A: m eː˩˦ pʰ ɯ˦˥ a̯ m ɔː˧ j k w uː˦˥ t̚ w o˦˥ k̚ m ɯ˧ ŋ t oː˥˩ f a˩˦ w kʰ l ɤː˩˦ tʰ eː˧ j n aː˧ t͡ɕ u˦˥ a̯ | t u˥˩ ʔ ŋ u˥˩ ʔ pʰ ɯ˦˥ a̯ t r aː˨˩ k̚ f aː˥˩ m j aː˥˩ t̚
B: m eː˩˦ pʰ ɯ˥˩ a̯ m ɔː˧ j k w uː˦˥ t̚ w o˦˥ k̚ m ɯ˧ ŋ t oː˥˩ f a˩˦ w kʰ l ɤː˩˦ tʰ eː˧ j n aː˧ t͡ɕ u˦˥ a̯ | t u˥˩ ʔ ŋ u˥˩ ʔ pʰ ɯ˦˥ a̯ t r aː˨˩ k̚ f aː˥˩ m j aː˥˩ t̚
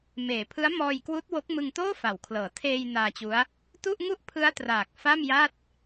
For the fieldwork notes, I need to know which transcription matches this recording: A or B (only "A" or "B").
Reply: A